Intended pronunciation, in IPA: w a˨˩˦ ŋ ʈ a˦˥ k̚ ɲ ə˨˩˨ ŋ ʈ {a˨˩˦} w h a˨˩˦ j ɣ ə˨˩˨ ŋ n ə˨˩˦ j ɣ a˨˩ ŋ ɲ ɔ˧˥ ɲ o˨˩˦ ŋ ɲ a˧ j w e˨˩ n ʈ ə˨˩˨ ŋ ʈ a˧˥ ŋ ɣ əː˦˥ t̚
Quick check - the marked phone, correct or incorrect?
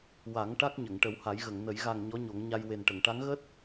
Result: incorrect